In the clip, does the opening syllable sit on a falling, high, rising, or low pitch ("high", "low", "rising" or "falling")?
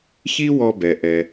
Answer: high